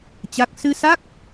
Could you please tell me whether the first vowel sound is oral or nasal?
oral